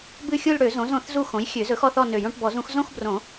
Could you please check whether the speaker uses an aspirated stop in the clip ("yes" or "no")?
no